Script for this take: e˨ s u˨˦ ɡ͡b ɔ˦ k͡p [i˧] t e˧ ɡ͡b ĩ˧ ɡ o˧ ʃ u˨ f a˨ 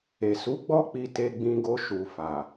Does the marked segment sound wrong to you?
no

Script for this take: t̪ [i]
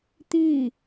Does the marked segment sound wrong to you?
no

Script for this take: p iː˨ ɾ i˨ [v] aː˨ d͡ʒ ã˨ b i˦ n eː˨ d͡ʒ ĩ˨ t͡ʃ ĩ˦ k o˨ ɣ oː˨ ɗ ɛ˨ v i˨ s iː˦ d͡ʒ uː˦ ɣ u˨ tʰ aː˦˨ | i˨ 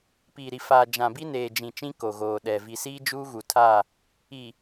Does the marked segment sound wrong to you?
yes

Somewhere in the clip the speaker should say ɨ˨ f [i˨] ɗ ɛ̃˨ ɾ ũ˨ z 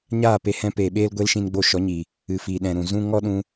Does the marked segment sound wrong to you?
no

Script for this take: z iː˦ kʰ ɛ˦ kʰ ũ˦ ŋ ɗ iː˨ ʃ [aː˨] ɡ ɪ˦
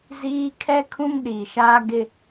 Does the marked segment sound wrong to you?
yes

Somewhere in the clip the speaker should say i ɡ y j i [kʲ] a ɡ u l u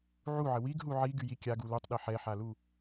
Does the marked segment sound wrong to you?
no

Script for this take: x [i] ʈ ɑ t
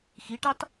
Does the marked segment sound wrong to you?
no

